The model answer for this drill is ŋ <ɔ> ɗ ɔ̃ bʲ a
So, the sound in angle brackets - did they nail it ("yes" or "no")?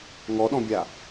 yes